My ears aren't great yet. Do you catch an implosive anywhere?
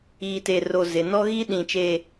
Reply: yes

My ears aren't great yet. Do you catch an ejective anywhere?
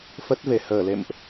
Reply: no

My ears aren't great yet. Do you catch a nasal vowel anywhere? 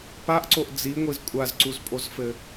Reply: no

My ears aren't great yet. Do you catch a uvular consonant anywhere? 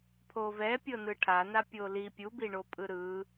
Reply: no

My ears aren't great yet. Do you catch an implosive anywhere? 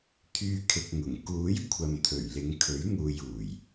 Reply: no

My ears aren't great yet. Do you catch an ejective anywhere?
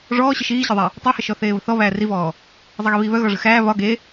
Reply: no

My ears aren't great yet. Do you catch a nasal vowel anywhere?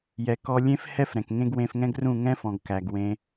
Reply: yes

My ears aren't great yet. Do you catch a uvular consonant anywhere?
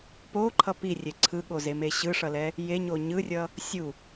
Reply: no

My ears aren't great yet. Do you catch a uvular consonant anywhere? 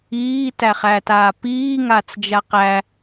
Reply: yes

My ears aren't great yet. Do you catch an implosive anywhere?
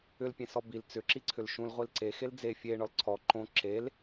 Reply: no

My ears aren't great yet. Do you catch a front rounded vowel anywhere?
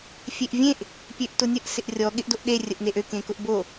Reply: yes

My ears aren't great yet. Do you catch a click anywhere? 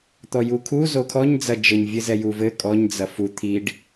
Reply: no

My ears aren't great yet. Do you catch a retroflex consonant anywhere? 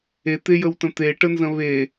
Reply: yes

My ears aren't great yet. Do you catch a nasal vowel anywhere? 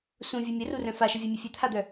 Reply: yes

